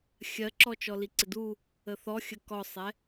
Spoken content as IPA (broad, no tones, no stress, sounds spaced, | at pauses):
xʲ ɜ ǁ ɔ t͡ʃ ɔ l i ǀ ɪ d u | ə θ ɔ xʲ ə k ɔ sˤ ɛ